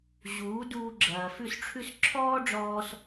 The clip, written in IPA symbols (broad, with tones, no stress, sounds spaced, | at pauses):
ʑ uː˨˦ d uː˧ ɡ͡ǁ ɐː˨ f ʉ˦˨ s ʈ͡ʂʰ ʉ˦ s ǁʰ ɔː˦ ɖ͡ʐ ɔː˧ s